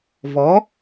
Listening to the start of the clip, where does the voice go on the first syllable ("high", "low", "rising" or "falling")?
rising